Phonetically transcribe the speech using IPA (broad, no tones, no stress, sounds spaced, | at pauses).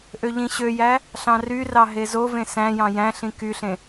ʔ ø ʎ ĩ ɕ ø j æ | ɬ ɑ̃ r y r ɑ ɦ e z o v ẽ s æ̃ j ɑ̃ j æ̃ ɬ ĩ k y ɬ ẽ